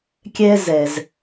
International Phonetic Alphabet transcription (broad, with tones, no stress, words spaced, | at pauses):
kʲɛ˧zɛ˩z